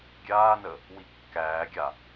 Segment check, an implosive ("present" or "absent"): absent